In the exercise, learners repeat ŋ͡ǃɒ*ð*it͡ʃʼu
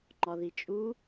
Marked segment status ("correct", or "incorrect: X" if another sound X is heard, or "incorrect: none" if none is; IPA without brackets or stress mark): correct